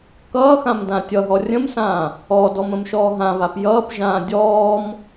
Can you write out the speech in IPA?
kʌːxãm dãtʲʌɦɔ rʲə̃msãː | ɔdɔm ə̃mʃɔːɦãβap jʌːpʒãː dʲɔːm

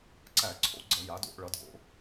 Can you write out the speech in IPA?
ǀæ˧˩˧ǀʰo̰˧˩˧ ɡ͡ǀʌ˧˩˧ ja˩˥do̰˧ʔɭʌ˩˥dɡo̰˧

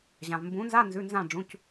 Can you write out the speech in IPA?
ʑã˩vmbũ˩˥nza˧˥˧ nzʉ˩˧˩nzã˧˩ ɖ͡ʐũ˩˧˩c

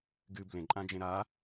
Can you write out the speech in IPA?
ɡɨ blẽǃʼãd͡ʒẽ ɾa

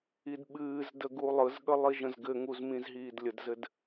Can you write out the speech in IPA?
idɓɨːzdə ɡulˠɯzɠə lˠiʒə̃zɡɘŋuz mĩzɦiːdlʲədzɘd

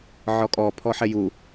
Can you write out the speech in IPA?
ʕɔkʼɔ pʰɔħɛju

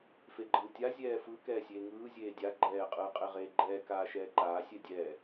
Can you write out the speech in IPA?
feɡ͡ǃɯːtʲa zʲɛːfɯ kɛːsʲeːŋɯː zʲeːdʲa ɡ͡ǃɛː qʼɯːqʼeʁeːɡ͡ǃɛː kaːʃɛːǃaː sʲɛdʲɛː

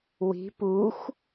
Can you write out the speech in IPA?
wi̤ puxʷ

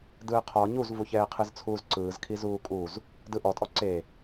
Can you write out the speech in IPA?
dɯːqʰɔ ɲuzvuçɛːqʰɯz t͡sʰuːzǀɯːzkʰi zuːkʼuz | dɯʔɔtʼɔ ǀe

